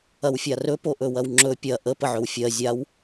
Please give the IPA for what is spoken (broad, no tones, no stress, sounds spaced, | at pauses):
ɐ w fʲ a r ɵ p o ʔ ɵ w ɐ w ŋ͡ǁ ɵ pʲ ɐ ʔ ə p ə ʕ ɵ w fʲ ɜ zʲ a w